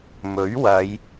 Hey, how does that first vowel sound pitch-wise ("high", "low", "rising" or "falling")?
rising